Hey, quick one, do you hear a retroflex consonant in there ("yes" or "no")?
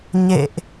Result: no